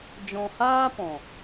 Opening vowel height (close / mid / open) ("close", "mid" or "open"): mid